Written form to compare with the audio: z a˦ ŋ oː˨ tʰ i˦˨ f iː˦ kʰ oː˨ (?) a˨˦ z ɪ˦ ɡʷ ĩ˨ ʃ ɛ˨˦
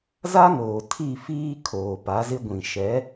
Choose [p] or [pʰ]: p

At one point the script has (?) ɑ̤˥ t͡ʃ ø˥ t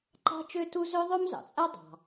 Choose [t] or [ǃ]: ǃ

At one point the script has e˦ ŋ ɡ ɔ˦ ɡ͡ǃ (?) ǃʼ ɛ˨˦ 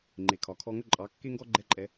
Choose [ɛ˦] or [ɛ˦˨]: ɛ˦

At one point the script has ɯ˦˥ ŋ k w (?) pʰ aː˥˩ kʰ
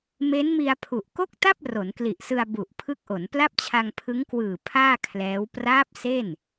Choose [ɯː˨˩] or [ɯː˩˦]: ɯː˨˩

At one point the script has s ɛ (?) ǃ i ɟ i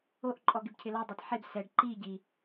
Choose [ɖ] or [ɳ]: ɖ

